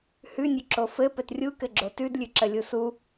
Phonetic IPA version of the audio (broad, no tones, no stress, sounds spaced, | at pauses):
h ʉ nʲ ʉ ǁ o f ɘ p ɘ t rʲ u k ɘ ɡ͡ǁ o t ʉ d lʲ ʉ ǁ ə lʲ u s u